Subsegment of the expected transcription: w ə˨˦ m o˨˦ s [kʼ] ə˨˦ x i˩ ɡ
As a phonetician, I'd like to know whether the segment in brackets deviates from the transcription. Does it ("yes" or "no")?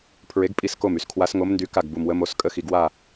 no